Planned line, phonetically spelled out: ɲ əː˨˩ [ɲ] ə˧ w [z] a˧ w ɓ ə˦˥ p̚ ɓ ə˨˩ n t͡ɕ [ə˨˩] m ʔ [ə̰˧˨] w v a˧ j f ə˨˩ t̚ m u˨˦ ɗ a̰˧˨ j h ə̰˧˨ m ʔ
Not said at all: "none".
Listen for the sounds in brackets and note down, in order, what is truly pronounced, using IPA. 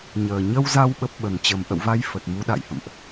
ɲ, z, ə˨˩, ə̰˧˨

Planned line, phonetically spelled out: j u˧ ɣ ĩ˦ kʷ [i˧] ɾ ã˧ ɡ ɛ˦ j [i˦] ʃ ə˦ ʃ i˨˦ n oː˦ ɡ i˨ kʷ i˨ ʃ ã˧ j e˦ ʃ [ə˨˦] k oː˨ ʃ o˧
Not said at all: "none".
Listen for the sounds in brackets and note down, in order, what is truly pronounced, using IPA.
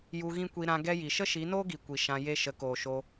i˧, i˨, ə˨˦

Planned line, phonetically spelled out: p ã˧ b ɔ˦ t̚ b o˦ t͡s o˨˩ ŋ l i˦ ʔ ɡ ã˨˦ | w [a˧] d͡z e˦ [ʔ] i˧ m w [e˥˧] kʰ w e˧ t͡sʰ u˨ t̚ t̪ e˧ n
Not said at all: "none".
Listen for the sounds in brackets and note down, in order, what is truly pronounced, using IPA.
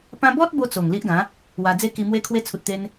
a˧, k, e˧

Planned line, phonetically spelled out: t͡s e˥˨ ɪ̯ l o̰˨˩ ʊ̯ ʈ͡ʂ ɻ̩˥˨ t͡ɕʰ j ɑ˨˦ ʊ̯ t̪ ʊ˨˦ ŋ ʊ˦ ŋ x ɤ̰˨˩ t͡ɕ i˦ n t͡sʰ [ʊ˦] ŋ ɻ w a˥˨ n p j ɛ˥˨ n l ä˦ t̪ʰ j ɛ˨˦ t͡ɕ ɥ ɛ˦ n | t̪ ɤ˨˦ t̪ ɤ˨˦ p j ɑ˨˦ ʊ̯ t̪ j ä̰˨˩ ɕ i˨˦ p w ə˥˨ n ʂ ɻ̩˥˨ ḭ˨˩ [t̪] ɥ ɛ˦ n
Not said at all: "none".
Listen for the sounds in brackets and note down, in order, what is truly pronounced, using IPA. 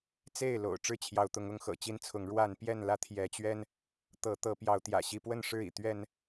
ʊ˨˦, t̪

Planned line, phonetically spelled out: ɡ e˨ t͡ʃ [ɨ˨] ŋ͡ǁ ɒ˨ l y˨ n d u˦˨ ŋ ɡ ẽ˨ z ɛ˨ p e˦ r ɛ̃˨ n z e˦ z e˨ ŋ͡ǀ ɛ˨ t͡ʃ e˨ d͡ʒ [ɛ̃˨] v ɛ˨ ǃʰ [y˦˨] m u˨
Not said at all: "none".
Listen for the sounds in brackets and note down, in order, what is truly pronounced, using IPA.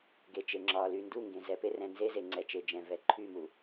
e˨, ɛ̃˨, y˦˨

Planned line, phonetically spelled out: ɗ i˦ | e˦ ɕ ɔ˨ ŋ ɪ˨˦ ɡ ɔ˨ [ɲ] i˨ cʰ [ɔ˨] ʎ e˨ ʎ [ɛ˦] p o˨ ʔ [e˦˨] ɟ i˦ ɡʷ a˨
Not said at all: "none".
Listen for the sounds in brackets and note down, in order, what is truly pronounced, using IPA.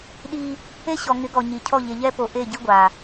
ɲ, ɔ˦˨, ɛ˦, e˦˨

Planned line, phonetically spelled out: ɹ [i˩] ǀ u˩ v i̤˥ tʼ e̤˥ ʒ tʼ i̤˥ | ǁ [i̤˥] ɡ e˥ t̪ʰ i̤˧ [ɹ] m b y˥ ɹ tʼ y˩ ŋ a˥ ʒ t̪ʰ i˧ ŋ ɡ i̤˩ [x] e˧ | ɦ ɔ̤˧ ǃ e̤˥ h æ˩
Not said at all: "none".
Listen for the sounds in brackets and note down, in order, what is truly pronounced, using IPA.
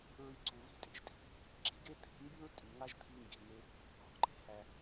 i˧, i̤˥, none, ŋ

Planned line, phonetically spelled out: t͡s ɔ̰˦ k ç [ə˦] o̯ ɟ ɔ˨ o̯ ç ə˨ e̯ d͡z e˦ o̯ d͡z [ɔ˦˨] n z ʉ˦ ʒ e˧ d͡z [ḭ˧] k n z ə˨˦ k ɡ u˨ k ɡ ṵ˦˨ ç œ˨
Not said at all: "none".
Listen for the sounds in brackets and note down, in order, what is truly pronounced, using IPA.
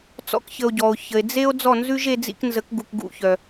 ə˧, ɔ˦˨, ḭ˧

